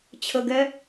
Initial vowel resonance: oral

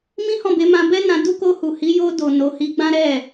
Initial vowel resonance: nasal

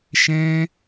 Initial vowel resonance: nasal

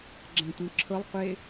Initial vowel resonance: nasal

